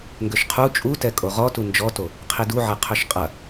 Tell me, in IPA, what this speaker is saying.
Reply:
ŋɡøʃqʰu t͡ʃʼutɛ kʼoʁɔtu nd͡ʒɔto | qʰiduʕɛ qʰøʃqʼɐ

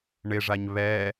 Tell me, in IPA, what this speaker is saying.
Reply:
ɳɪʐaɲ βɛ

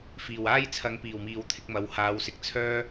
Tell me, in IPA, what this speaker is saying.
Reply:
fiː˨˩waː˥jt͡sʰɐ˨˧ŋ piː˨˩wmiː˨wt̪ʰɪ˧k̚mɐ˨˥w haː˨˧wsɪ˨˥k̚t͡sʰœː˥

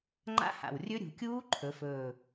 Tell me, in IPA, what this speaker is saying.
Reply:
ŋ͡ǃa̰˦˥ha̰˨˩wrʲɵ˦˥ ɾʲṳ˩˧kʲuː˦˥ ǃʰɵ˩˧fɵː˨˩

